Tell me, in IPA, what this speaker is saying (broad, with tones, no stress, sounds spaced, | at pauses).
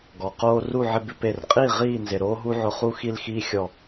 ɡ ɔ˩ q oː˦ r u˥˨ ʕ ɪ˦ b ɪ˦ p e˧˩ r qʼ iː˥˨ ʁ iː˥˨ n z ɪ˩ ɾ oː˦ ɦ u˦ ʕ ʊ˧˩ χ u˥˨ x i˥˨ l x iː˦ xʲ ɔ˧˩